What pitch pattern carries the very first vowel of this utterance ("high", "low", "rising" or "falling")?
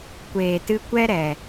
low